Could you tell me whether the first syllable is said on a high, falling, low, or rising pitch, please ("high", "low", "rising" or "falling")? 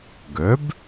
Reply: rising